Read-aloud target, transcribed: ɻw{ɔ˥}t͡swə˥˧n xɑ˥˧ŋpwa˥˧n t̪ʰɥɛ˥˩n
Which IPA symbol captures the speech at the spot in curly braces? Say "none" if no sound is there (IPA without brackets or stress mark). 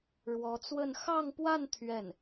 ɔ˧˥